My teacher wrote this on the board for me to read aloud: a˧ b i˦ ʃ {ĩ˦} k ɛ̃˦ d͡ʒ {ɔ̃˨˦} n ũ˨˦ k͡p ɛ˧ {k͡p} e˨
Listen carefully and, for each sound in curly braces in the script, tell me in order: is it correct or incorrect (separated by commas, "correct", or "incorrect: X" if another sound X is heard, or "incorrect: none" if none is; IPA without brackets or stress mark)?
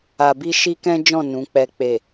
incorrect: i˦, incorrect: ɔ̃˦˨, correct